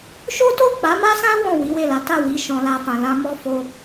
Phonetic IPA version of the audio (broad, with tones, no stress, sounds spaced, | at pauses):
ʃ o˦ t o˦˨ k͡p a˨˦ m a˦ s ã˦ w ɔ̃˦˨ w i˨˦ w e˦˨ l a˨˦ t a˦˨ w i˨˦ ʃ ɔ̃˧ l a˧ f ã˨ l ã˧ m ɔ˦ f o˦